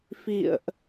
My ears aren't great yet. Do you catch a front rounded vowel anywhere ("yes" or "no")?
no